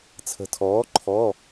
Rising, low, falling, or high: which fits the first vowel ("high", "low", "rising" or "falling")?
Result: rising